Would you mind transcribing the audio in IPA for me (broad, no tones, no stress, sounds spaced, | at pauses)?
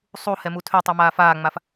sˤ u h ɛ m u tʰ ø tˤ i m aː f aː ŋ͡m a f